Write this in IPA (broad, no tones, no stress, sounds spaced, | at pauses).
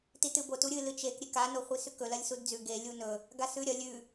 t i t ɨ b o t u ɾʲ ɨ l ɨ t͡ʃ e k ɾʲ e k a n o χʷ i s ʉ k ɵ l ɐ lʲ s u d d͡z ʉ ɡ e lʲ u n ɵ | ɡ a s ʉ ɾʲ ɐ lʲ ʉ